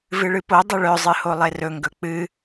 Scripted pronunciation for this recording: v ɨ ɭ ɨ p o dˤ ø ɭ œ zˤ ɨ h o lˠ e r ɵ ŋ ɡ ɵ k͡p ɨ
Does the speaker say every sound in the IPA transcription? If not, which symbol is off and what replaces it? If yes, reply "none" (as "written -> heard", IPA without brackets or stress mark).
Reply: none